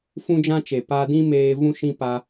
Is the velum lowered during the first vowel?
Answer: yes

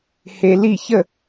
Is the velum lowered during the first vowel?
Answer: no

